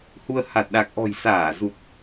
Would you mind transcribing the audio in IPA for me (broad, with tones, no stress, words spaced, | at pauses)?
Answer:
hu˧ə̯ ha˨˩t̚ɗa˨˩k̚ʔɔ̤˨˩j saː˧˩zu˨˩t̚